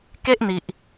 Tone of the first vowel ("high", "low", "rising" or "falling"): high